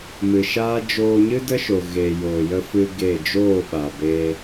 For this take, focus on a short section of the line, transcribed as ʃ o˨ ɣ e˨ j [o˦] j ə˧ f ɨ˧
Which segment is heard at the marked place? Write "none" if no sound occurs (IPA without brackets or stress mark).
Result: o˨